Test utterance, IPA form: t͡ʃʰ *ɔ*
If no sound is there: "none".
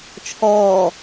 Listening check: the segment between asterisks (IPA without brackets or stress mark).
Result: ɔː